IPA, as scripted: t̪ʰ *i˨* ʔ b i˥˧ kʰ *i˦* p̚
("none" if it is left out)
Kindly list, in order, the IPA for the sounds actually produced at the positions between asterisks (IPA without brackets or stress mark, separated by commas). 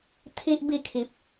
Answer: i˦, i˨